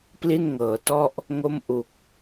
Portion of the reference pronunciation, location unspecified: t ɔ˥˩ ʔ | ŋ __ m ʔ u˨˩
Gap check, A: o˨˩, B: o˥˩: B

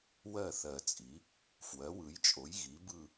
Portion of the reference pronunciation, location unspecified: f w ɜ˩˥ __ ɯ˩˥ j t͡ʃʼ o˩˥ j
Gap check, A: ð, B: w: B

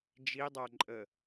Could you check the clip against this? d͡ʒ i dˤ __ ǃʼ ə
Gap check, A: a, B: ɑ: A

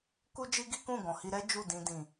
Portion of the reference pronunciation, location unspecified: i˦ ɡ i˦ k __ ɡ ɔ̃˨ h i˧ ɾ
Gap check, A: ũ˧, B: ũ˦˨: B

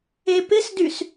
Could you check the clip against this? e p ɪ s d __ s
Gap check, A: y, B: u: A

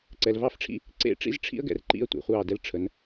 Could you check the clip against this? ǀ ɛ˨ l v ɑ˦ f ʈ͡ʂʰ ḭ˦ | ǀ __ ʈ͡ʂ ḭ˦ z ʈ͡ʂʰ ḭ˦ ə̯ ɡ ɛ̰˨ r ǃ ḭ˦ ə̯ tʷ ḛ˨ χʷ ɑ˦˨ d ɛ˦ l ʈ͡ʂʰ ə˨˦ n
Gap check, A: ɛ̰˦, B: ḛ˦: B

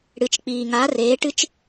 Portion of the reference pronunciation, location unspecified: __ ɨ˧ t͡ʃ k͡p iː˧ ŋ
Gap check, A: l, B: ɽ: B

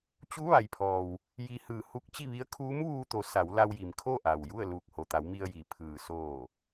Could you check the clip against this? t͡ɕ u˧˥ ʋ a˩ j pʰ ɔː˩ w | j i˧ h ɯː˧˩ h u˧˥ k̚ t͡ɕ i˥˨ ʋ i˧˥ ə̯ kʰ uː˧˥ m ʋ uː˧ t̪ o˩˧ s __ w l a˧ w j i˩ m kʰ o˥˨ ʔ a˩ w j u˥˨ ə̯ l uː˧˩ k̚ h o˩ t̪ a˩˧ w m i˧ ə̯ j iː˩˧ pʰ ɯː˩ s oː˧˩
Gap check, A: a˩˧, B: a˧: A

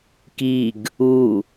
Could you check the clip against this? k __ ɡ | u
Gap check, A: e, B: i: B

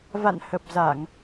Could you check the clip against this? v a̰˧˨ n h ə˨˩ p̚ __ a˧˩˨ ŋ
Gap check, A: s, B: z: B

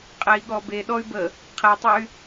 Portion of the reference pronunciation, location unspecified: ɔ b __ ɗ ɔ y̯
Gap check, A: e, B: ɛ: A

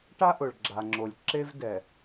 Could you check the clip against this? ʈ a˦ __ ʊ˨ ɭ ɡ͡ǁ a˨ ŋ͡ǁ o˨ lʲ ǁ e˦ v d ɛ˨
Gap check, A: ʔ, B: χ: A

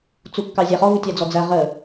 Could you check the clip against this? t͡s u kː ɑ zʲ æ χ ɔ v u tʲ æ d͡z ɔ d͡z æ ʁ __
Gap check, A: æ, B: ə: B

